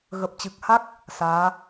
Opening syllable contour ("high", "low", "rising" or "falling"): low